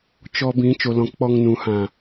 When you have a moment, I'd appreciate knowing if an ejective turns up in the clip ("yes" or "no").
no